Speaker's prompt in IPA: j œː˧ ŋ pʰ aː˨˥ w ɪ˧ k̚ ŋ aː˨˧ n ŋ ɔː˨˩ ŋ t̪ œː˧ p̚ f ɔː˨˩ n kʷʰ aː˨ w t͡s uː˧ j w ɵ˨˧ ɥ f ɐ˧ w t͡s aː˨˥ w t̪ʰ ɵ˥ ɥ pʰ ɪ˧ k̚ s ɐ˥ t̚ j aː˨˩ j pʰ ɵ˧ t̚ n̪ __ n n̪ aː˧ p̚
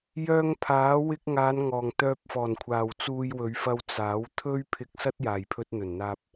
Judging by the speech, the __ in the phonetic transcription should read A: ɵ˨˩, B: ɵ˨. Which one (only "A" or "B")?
A